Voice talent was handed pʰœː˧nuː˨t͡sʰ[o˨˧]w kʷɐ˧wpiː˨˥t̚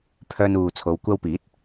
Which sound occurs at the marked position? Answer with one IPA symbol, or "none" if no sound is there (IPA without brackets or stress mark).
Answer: o˨˧